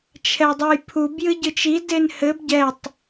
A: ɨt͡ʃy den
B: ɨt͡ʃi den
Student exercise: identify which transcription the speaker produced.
B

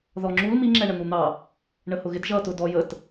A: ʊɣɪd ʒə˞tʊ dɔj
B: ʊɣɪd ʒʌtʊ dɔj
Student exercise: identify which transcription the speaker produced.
B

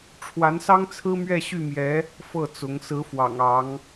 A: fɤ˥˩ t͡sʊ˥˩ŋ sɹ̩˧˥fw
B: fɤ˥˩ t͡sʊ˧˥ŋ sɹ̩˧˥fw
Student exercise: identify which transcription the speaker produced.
B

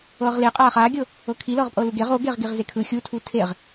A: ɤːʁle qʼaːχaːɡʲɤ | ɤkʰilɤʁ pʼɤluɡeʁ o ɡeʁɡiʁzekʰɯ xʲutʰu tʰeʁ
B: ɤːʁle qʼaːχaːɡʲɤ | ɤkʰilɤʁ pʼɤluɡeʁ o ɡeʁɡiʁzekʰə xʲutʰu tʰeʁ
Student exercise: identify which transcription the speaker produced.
A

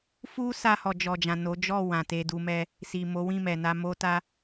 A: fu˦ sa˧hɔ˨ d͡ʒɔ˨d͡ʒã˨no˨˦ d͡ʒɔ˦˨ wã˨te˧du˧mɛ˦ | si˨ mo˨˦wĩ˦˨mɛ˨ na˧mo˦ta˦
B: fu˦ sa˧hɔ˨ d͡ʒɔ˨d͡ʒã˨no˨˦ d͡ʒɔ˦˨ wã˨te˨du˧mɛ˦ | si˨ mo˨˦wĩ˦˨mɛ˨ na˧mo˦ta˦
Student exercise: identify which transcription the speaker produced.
A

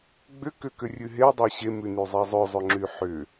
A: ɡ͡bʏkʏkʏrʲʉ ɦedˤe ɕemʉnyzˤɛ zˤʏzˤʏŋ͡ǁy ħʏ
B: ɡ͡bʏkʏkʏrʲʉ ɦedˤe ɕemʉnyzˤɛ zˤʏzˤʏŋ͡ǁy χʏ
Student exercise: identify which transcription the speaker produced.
A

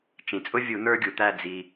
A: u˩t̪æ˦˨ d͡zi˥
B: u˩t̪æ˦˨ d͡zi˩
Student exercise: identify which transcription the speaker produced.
B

